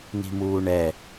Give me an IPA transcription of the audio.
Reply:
n̪i̤muːɳɛ

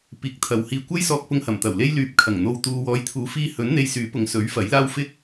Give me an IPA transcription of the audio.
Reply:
piː˨˥k̚t̪ʰɐ˨whiː˧ kʷɐ˥jsɔː˧k̚pʊ˧ŋhɐ˨˩m t̪ɐ˨˩wle˧jlyː˨p̚ kʰɐ˨˩ŋ n̪o˧wt̪uː˧ wɔː˨˧jt̪ʰuː˨˥fiː˧hɵ˨˥n n̪e˧jsyː˨˥pʊ˨ŋsɵ˨˥ɥ fɐ˨˥jlaː˥w fɪ˥k̚

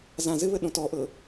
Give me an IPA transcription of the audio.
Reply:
zã zɘβə ɗõtɔʔɤ

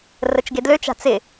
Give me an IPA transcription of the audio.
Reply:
rət͡ʃɡedløt͡ʃa̤ t͡sɪ

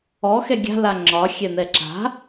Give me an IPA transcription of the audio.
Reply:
ɔxɛ ɡʲa̤la ŋ͡ǁɒ xʲɛn̪ɛǁa̤

